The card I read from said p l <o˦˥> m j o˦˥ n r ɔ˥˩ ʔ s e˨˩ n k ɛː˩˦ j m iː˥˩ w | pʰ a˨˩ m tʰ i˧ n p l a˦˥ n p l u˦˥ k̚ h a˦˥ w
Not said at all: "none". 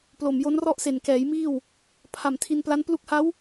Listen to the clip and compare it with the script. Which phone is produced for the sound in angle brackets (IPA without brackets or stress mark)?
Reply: o˨˩